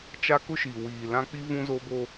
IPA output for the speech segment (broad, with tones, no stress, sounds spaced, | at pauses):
t͡ʃ a˦ k ʊ˦ ʃ i˨ w iː˨ l ã˦ k͡p i˦ v ũ˦ z o˦ b o˦